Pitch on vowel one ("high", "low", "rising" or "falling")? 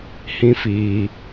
high